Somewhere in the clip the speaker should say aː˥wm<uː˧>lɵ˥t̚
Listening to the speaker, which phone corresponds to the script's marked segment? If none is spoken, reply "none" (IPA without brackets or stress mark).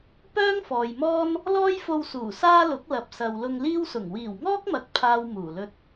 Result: uː˨˩